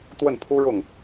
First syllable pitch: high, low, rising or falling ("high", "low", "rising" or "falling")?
falling